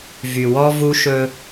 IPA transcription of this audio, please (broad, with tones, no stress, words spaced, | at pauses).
vy˨wɔ˦ vu˦ʃɵ˦